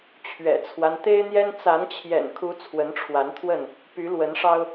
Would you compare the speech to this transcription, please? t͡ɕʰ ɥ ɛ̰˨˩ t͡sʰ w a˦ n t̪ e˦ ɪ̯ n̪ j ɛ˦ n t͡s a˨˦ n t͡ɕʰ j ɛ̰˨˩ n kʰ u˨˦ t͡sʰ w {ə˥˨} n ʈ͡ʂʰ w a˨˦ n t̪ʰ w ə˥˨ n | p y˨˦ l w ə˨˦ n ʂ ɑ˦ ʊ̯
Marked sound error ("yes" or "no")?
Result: yes